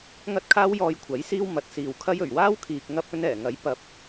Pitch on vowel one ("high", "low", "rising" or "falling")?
high